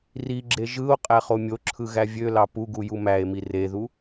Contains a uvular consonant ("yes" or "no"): yes